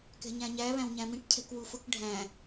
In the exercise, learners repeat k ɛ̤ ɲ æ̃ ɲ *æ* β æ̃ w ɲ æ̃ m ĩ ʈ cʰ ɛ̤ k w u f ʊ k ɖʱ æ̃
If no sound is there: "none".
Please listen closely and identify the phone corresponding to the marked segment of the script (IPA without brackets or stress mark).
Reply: æ